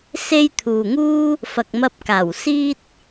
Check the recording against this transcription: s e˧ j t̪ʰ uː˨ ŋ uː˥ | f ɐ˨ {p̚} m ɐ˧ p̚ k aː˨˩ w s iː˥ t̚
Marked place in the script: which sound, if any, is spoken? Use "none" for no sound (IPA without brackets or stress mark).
k̚